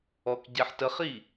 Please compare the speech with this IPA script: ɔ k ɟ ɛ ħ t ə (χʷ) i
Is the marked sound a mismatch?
yes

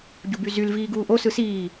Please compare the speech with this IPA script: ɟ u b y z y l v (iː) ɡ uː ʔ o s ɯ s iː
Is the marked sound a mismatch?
no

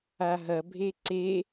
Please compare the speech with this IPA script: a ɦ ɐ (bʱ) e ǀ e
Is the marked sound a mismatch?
no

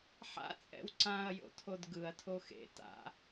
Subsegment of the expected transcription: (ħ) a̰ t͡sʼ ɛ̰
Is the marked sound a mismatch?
no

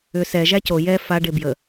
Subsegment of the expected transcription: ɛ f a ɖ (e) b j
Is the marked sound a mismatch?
no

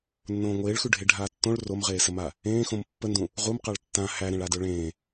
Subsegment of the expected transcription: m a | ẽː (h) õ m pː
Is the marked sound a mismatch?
yes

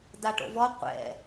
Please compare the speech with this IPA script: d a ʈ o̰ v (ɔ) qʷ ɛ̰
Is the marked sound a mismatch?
no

